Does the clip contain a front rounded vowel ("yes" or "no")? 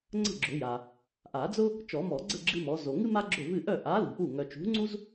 yes